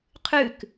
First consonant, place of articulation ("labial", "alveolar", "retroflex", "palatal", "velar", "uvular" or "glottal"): uvular